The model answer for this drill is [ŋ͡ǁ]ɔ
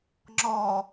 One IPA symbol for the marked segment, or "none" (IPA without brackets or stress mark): ŋ͡ǁ